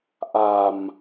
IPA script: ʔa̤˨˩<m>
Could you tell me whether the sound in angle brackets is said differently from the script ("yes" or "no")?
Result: no